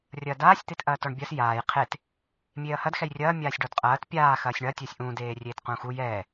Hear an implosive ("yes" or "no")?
no